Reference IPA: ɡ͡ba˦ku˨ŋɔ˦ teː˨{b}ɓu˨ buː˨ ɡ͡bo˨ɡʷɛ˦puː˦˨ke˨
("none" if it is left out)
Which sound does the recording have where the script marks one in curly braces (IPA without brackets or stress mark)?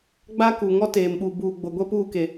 m